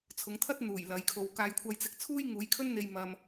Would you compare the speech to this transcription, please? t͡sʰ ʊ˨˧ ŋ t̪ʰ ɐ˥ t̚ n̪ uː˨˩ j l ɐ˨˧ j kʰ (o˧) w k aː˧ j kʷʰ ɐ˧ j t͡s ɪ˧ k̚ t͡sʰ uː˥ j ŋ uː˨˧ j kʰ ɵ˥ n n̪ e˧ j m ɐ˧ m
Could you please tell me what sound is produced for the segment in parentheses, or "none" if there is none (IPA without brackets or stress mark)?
o˧